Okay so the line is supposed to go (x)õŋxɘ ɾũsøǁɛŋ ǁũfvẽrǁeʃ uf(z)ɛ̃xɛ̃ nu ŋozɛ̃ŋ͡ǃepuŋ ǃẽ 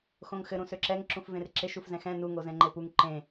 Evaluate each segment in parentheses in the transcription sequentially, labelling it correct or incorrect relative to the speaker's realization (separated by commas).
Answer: correct, correct